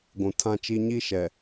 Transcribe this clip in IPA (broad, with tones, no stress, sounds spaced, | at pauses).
ɡʷ ũ˨ tʰ ã˦ t͡ʃ i˦ ɲ i˦ ʃ ɛ˨